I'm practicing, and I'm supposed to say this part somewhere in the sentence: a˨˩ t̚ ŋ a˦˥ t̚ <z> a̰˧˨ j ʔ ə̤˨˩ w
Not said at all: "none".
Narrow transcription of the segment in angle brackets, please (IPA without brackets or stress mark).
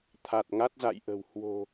z